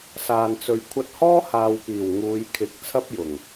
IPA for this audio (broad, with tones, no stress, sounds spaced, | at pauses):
s aː˨ n t͡s ɵ˨ ɥ kʷʰ ɐ˧ t̚ h ɔː˥ h aː˨ w p iː˨˩ w ŋ uː˨˧ j kʰ ɪ˨˥ k̚ t͡sʰ ɐ˥ p̚ j ʊ˨˩ ŋ